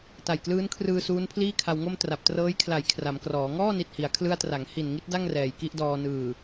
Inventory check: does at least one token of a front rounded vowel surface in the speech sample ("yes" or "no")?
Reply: no